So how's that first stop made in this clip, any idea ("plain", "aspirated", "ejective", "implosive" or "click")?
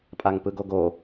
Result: ejective